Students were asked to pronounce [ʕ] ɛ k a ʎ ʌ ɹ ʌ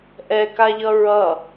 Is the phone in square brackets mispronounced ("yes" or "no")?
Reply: yes